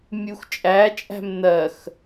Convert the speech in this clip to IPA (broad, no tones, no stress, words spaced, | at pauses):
mʲuxt͡ʃʼæt͡ʃʼæ̤m nɜx